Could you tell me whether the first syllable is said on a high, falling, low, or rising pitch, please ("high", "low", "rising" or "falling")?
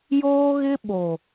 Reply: high